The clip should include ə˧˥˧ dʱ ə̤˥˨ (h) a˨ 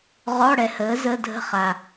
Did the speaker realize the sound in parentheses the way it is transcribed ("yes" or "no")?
no